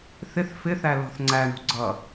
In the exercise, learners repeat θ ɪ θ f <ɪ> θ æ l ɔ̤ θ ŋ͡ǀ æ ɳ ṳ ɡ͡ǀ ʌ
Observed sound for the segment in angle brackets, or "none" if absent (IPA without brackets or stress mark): ɪ